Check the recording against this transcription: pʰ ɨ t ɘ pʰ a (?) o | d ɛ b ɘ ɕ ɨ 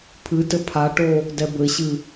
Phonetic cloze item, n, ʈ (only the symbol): ʈ